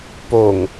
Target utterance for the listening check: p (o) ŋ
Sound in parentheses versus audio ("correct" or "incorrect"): correct